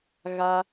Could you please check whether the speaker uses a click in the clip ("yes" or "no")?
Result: no